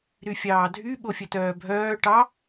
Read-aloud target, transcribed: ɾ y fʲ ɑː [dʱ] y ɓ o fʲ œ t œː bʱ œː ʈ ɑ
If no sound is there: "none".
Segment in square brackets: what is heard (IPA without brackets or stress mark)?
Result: dʱ